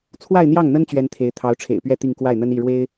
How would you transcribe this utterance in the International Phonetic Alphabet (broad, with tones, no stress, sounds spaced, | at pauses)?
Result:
t͡sʰ w a˥˧ ɪ̯ n̪ j ɑ˥˩ ŋ n̪ ə˥ n t͡ɕ ɥ ɛ˥ n t̪ʰ e˧˥ ɪ̯ t̪ʰ ɑ˧˥ ʊ̯ ʈ͡ʂʰ ḛ˨˩ ɪ̯ p ɥ ɛ˥˧ t̪ i˥˧ ŋ k w a˥˩ ɪ̯ n̪ ə˥ n i˥˩ ɻ w e˥ ɪ̯